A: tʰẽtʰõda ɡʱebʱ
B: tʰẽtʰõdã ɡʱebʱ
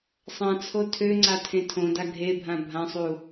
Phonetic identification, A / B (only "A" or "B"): A